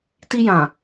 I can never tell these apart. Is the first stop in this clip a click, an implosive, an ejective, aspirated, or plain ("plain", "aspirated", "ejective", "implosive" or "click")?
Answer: plain